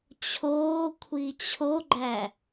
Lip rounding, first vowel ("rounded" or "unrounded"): rounded